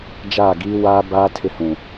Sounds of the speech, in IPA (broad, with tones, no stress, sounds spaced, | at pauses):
d͡ʒ aː˦˨ ɡ iː˦ w aː˦ b aː˦ tʰ ɪ˦ h ũ˨